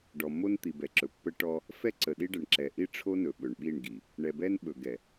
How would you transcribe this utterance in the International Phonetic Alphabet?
ɖ ɔ˨ mː o˦ n t̪ i˨ b ɛ˨ ǁ ɵ˨ pː ə˦ ʈ ɔ˦ | f ɛ˦ ǀ ə˨ ɗ i˦ ɖ ə˨ ɳ ǁ ɛ˨ ʔ i˦ ʈ͡ʂʰ o˦ n ɵ˨ ɓ ɵ˨ ɳ ɓ i˦˨ ɳ ɡ i˨ | ɳ ɛ˨ b ɛ˦ n ɓ ɵ˨ ɡ ɛ˨

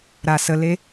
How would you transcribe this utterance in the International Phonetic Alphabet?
ɾ a˧ s ə˧ l e˦

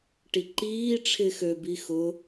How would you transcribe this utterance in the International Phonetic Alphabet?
ʈ i ǃ iː ʈ͡ʂʰ ɪ x ø b i x ʊ

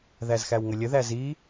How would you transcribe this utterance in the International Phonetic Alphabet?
ð æ z x æ w ŋ ə lʲ ə ð æ z i

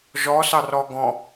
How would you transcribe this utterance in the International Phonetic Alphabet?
ʒ ɔ s ɑ r ɔ ɡ ɔ̃

